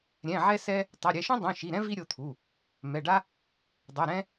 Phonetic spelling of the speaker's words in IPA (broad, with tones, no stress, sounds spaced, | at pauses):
ɾʲ ɛ̃˩˧˩ ʕ ɛ˥ s ɛ˥ | tˤ a˩˧˩ ɾʲ ɛ˩˧˩ ʃ ũ˥ dˤ ũ˩˧˩ ʃ i˩˧˩ ɾ ɛ̃˥ v i˥ ɾʲ o˩˧˩ t̪ʰ u˩˧˩ | m ɛ˩˧˩ ɖ a˥ | dˤ ɯ˩˧˩ ɾ ɛ̃˥